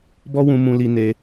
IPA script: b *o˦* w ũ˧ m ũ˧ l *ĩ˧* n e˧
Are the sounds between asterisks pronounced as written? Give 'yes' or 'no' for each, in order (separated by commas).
no, no